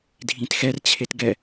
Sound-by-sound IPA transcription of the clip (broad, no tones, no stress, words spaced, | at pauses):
dʱĩtxɛr t͡ɕʰetɡɛ